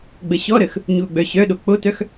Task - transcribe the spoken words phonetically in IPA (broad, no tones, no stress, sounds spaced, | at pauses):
ɡ͡b ə ɕ ɔ ɾ ə x | ɲ u o̯ ɡ͡b œ ɕ œ ɗ o k͡p o t œ x